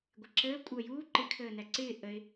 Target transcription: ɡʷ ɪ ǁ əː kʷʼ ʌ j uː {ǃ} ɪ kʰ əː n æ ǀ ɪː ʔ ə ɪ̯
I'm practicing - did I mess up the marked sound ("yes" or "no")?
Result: no